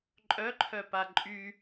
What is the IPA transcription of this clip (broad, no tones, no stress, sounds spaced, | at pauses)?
ǃʼ œ ǃʰ œ p a ǃʼ y